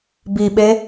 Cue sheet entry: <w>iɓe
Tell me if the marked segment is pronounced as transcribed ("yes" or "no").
no